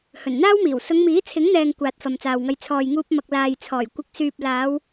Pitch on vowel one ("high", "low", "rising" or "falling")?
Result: low